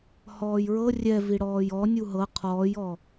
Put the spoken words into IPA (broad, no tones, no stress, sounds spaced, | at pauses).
h ɔː j ɹ ɤ rʲ ɛ v i ɽ ɔː j ɔ nʲ u ɦ ɤ qʰ ɔː j ɔ